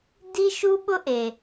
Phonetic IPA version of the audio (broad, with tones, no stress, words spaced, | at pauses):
di˥ʃu˥ɓʊ˥ʔe˩